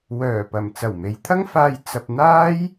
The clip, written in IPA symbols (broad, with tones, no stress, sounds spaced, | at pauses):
w œː˨˩ p ɐ˨˩ m t͡s ɐ˨˩ w m e˨˧ j t̪ʰ ɐ˥ ŋ f aː˧ j t͡s ɐ˧ p̚ n̪ aː˥ j